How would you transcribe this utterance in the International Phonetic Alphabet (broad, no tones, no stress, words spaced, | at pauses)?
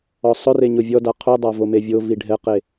ɔsˤʊre ɲʊvʲɔda qʰudˤa vomevʲovi ɖʱɛqe